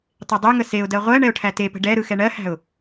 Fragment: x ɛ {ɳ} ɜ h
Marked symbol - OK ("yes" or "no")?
yes